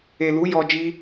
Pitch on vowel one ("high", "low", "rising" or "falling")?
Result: low